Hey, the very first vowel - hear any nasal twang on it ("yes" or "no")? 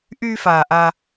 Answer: no